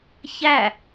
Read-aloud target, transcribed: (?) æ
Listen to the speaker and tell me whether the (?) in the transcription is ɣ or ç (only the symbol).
ç